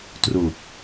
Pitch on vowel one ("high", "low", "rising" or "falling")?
low